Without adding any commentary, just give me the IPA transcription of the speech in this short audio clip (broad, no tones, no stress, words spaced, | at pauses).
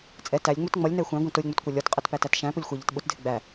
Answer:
t͡sʼɛ tælʲŋ͡mʊt ŋ͡mʌlʲnæ xʷæ̃ɡʷɛ̃ tʊlʲŋ͡mʊtkʷʌ lʲɒtqʼʌtpætæt ʃæ̃pʊlʲ xʷɪʎɪt ɓʊtdʱɪ ɡ͡bæ